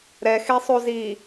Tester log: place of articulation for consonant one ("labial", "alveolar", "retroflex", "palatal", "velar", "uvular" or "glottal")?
alveolar